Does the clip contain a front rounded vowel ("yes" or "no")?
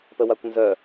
yes